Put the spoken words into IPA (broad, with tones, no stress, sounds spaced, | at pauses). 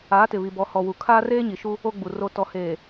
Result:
aː˨˦ t ɪ˨ β i˨ b ɔ˨ h ɔ˨ w u˨ kʰ aː˦ r eː˦ ɲ i˨ ʃ u˦ | o˦ ɡ͡b u˨ r o˨ t ɔ˨ h eː˨